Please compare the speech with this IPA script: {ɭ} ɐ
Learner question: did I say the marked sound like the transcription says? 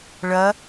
yes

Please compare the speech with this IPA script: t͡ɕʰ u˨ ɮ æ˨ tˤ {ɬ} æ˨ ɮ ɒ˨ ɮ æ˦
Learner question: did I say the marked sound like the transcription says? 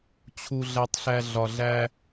yes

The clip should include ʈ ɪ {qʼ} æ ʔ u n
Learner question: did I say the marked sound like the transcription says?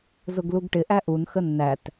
no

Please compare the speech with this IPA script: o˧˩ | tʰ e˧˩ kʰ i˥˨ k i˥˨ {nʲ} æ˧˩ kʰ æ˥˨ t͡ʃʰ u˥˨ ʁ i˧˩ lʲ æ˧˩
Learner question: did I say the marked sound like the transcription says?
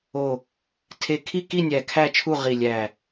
yes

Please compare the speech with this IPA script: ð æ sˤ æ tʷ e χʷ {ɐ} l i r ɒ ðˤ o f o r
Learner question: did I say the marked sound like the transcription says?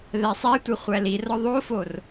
no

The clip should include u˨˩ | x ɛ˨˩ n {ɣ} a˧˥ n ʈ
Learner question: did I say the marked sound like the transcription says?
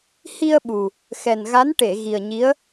yes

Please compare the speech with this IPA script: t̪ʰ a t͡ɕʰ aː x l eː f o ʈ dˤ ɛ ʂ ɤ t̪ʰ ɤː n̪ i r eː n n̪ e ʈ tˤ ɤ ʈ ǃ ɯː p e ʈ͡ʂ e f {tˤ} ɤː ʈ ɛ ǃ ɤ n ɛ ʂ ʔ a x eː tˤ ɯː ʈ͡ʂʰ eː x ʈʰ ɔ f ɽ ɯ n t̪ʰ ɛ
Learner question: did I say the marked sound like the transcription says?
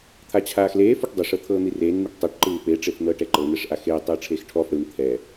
no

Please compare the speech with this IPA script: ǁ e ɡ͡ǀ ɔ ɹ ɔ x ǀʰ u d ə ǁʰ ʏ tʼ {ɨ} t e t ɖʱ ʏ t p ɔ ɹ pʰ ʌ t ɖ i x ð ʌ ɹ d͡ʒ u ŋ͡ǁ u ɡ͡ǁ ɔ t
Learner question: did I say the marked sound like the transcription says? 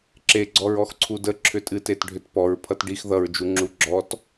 yes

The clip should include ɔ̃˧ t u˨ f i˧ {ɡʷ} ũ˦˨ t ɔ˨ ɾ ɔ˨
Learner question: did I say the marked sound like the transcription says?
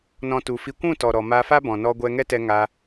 no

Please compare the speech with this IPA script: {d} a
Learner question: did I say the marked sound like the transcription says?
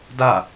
yes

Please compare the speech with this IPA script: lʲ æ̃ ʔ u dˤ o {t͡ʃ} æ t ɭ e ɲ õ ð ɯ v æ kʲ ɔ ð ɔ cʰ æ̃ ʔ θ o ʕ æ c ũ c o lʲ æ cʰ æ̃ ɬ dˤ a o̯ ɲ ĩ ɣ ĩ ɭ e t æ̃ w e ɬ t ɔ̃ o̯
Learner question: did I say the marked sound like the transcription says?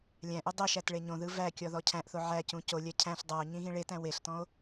no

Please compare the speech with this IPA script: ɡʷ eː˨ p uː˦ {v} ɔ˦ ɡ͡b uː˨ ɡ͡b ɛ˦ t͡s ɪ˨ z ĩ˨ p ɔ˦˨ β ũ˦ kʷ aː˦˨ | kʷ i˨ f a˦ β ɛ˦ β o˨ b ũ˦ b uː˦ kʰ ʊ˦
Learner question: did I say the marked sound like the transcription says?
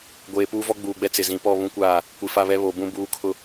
yes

